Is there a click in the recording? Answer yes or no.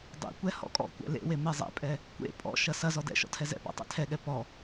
no